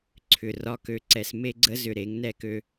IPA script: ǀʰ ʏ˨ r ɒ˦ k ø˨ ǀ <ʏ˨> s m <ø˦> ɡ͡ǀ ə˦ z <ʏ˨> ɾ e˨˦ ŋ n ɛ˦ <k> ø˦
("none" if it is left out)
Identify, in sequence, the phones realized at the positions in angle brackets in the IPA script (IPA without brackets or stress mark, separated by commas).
ɛ˨, e˦, ʏ˨, k